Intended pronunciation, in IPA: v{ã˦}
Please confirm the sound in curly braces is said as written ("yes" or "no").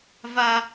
no